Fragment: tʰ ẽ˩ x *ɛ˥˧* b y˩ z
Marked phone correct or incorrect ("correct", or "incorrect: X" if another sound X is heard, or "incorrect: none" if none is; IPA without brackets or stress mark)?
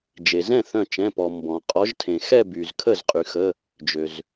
correct